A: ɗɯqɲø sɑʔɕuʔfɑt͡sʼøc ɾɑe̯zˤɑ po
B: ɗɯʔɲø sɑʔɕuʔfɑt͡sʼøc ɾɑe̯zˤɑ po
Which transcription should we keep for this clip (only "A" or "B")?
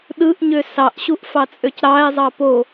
B